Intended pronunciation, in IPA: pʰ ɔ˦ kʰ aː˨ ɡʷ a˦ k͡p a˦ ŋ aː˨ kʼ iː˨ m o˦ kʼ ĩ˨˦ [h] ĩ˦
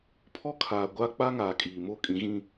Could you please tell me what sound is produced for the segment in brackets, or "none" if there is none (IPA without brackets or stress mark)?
ɣ